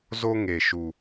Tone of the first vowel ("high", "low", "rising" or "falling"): high